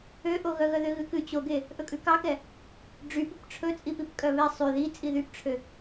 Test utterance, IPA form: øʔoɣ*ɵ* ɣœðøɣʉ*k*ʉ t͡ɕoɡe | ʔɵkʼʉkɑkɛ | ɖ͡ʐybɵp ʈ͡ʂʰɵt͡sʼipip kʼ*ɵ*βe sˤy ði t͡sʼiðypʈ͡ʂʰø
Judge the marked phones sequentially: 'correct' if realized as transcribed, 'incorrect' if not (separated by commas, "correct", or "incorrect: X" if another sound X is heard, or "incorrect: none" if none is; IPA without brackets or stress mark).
incorrect: œ, correct, incorrect: œ